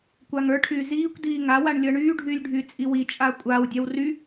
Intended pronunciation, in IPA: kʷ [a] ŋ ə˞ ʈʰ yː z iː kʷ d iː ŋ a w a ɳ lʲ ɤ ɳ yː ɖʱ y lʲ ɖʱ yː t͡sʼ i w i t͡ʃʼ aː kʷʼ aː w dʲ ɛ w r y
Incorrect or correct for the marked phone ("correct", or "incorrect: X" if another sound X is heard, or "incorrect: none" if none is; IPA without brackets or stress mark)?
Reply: correct